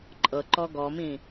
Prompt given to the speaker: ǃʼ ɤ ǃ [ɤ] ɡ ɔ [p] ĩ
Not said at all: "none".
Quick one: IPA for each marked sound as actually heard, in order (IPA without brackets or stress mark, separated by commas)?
ɔ, m